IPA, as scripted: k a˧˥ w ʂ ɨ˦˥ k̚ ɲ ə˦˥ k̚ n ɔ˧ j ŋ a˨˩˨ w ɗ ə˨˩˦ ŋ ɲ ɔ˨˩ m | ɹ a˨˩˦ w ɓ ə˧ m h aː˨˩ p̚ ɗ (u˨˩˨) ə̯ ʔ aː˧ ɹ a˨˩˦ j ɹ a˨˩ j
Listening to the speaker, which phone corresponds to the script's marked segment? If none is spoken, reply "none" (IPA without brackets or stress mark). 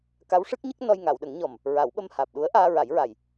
u˧˥